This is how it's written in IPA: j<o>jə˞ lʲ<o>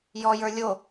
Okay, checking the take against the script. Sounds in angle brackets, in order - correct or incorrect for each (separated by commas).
incorrect, correct